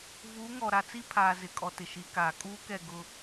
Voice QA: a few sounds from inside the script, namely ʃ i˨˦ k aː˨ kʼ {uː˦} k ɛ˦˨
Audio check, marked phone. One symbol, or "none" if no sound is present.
uː˦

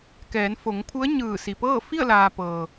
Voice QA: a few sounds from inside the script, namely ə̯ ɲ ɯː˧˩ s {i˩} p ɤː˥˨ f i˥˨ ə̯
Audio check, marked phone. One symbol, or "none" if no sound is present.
i˩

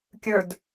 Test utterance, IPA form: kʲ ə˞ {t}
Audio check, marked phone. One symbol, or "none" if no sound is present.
d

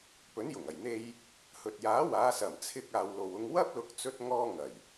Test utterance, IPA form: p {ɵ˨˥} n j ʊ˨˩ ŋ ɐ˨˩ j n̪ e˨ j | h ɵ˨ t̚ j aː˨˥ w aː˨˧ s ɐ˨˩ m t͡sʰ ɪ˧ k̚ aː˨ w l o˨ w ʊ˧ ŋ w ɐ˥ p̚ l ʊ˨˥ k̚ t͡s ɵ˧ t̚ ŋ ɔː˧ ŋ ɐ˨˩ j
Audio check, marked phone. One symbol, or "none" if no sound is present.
ɵ˨˥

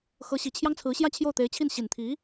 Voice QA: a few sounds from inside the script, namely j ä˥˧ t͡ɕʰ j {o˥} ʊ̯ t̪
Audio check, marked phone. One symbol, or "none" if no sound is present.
o˥˩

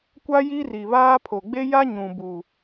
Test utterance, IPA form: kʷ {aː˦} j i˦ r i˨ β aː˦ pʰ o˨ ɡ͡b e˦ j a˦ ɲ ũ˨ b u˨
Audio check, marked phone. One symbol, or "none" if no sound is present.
a˦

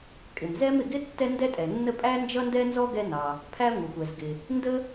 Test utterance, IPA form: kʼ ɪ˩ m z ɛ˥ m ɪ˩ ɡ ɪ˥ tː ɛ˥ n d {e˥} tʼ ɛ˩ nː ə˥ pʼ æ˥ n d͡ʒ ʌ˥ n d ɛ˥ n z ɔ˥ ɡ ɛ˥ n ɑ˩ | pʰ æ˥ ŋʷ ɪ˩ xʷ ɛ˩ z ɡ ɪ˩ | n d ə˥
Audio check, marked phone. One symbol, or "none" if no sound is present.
ɛ˥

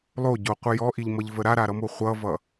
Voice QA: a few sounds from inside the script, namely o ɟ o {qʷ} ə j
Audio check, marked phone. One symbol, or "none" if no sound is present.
qʷ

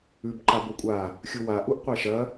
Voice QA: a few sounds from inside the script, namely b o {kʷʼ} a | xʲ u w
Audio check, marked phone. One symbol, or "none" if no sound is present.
kʷʼ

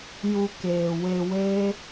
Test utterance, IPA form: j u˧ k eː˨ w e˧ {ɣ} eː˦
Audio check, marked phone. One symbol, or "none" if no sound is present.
w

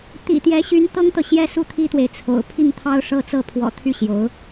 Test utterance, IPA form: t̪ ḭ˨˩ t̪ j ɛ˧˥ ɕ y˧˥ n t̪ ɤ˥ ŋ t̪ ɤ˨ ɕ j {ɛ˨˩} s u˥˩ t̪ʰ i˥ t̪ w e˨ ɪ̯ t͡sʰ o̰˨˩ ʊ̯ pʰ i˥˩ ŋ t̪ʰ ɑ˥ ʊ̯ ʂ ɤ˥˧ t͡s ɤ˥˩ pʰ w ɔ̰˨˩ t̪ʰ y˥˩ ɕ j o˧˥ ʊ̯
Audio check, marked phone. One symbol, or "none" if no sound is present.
ɛ˥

